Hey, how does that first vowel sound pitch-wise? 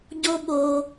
high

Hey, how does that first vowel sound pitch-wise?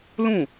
falling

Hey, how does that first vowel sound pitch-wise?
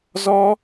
high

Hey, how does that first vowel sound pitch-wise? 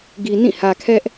low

